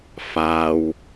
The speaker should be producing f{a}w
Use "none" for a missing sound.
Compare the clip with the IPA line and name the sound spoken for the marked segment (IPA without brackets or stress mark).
a